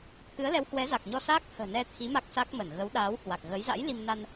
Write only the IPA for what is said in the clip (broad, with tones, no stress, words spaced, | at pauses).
t̪ʰɨ˨˦ə̯lɛ˨˦whwɛ˨˦za˨˩k̚ ɲɔ˧saː˦˥k̚t̪ʰə̤ː˨˩ nɛ˧t̪ʰi˨˦ ma˦˥k̚sa˦˥k̚mə˧˩n ɣə˨˦wɗaː˨˦whwa˨˩k̚ ɣə˨˦jza̰˧˥j li˧m na˧n